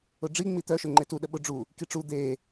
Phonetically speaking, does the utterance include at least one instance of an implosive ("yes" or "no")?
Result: yes